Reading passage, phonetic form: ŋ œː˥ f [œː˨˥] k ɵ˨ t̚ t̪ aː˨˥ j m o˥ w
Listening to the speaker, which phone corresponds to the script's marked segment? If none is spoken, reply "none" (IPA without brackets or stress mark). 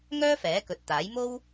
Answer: ɛː˨˥